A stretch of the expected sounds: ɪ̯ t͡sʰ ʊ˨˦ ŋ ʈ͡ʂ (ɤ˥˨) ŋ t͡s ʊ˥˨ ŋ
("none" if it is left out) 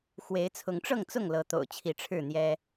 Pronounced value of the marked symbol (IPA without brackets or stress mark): ɤ˥˨